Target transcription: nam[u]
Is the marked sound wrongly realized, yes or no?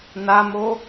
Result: yes